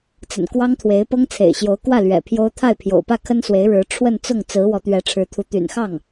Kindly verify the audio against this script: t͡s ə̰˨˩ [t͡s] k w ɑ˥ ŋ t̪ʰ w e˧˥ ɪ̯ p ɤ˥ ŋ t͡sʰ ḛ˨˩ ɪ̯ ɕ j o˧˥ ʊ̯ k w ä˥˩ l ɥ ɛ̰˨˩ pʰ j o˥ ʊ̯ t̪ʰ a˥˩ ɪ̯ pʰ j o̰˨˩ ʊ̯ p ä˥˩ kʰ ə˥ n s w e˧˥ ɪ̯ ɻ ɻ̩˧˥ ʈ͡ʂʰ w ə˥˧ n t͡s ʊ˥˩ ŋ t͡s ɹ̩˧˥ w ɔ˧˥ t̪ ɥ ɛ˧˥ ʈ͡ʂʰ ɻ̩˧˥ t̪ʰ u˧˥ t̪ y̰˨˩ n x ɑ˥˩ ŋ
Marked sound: incorrect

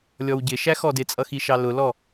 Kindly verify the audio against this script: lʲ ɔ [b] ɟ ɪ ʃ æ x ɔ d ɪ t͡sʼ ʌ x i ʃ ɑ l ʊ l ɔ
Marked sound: incorrect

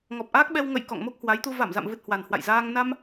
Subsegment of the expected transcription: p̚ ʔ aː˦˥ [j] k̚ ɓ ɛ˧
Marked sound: incorrect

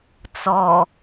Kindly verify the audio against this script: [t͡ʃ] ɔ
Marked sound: incorrect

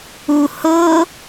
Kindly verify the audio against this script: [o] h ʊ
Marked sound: incorrect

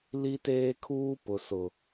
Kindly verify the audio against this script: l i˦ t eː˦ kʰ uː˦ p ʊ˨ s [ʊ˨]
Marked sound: correct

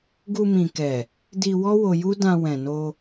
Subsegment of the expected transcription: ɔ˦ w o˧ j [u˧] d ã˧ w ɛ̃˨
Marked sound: incorrect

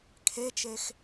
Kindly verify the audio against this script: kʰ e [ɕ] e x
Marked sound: incorrect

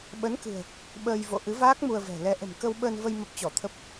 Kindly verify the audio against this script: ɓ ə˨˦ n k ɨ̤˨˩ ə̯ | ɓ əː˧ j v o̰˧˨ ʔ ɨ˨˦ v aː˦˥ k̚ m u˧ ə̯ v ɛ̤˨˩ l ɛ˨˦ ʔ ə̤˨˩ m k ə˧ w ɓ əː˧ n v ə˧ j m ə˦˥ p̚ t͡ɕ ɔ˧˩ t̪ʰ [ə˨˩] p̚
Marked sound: incorrect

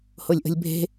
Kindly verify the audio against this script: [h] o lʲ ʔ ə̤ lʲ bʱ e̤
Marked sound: correct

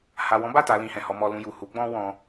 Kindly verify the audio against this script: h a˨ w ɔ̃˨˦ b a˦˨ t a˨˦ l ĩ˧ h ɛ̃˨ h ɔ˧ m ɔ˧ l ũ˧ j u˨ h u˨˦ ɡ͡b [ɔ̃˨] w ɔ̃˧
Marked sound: incorrect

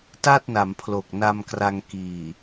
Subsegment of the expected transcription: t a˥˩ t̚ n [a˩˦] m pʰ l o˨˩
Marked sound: correct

